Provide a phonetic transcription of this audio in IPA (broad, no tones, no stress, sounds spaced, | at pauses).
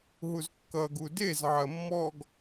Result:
ɦ u z kː ʌ ɡ u d e z ʕ ɐ mː ɔ ɡ